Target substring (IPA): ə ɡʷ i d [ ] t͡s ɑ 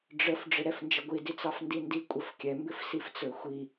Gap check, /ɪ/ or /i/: i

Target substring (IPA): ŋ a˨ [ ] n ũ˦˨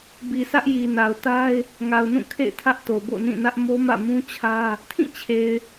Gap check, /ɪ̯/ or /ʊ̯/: ʊ̯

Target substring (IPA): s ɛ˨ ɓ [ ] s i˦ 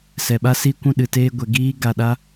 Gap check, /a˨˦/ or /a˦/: a˦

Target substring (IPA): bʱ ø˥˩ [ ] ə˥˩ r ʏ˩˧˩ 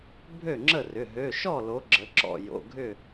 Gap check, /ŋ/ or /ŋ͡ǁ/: ŋ͡ǁ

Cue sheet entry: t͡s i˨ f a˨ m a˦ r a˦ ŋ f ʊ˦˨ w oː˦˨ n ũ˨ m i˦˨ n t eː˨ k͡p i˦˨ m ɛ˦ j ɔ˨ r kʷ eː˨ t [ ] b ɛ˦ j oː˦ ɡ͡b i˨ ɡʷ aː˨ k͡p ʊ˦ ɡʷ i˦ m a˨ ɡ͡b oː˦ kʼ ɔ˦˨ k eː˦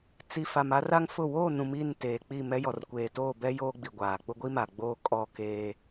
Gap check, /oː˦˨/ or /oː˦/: oː˦˨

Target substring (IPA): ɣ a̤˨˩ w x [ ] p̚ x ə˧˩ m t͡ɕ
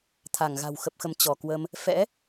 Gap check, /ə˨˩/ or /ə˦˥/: ə˨˩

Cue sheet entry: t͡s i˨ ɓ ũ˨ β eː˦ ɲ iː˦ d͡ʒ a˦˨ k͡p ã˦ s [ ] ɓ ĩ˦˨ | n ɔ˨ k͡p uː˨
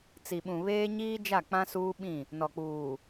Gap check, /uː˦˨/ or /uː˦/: uː˦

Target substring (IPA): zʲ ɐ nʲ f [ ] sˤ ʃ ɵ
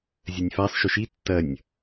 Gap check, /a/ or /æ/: a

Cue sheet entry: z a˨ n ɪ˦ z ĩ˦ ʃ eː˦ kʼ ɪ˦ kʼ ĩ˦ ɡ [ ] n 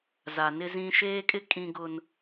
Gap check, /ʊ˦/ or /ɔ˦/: ʊ˦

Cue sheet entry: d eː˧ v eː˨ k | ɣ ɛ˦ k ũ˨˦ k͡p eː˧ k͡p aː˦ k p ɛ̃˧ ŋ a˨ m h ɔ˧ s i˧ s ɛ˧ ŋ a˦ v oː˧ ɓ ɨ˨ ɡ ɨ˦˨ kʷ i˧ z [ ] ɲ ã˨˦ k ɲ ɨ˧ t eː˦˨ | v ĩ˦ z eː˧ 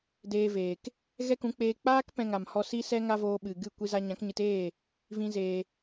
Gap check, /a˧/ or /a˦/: a˧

